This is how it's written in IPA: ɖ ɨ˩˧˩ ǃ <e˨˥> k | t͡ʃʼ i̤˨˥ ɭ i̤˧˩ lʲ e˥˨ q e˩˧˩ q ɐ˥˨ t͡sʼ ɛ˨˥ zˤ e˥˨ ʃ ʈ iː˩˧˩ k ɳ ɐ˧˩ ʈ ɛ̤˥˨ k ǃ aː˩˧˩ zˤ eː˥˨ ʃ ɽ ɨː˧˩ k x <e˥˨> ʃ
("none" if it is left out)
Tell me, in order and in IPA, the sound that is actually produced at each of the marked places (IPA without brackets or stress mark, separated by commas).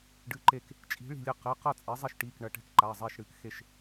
e˧˩, e˥˨